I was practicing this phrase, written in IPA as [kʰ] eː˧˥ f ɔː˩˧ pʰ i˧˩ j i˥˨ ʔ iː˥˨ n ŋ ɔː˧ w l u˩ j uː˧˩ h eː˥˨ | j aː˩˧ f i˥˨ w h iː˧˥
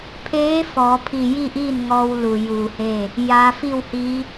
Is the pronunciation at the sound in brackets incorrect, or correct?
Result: incorrect